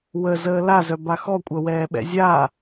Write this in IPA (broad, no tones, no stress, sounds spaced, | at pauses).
w ə z əː l a z œ b a x ɔ kʷʼ œ w ɛː ɓ ɛ̰ zʲ a